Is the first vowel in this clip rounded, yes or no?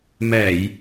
no